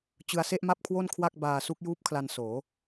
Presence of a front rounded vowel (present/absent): absent